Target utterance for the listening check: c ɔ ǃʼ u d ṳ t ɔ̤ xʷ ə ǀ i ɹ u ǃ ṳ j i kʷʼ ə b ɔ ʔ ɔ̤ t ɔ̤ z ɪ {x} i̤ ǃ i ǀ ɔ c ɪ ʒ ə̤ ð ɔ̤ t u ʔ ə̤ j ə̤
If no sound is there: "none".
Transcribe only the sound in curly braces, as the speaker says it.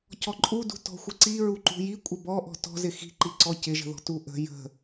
x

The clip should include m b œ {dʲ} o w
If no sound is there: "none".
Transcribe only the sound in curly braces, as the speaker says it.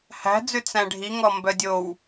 dʲ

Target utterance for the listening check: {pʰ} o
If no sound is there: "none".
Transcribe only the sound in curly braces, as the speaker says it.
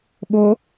ɓ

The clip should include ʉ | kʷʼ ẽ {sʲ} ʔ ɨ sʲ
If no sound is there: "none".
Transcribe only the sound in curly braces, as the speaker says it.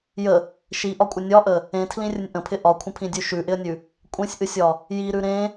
sʲ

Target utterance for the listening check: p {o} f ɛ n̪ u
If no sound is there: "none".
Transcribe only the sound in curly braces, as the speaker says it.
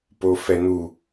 o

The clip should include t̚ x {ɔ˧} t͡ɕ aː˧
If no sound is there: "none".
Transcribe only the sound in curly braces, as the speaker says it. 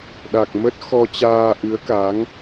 ɔ˧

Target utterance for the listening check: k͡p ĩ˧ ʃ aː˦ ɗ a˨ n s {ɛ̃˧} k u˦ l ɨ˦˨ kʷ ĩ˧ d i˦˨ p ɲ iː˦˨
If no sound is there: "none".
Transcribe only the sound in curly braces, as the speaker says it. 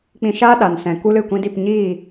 ɛ̃˨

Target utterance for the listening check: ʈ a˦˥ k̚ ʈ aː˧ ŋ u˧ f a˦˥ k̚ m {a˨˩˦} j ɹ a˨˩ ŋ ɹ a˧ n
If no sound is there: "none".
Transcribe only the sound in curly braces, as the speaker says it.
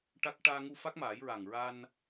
aː˨˩˦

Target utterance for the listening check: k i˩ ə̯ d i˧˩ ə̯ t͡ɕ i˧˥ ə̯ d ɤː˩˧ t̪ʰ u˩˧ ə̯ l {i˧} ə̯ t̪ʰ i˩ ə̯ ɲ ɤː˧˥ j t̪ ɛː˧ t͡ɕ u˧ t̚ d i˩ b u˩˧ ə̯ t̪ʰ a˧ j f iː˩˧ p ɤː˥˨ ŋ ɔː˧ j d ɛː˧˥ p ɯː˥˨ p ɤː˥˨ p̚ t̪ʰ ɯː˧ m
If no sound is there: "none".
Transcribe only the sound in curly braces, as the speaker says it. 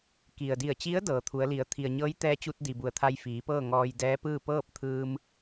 i˩˧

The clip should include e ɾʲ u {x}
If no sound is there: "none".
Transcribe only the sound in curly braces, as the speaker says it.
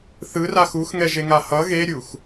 x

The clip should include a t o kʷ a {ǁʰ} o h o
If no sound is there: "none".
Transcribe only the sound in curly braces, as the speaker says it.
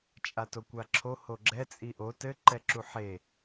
ǁʰ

